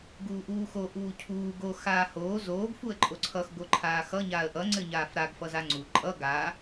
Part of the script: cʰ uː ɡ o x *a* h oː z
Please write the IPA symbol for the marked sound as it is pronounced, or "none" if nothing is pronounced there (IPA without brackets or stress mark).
aː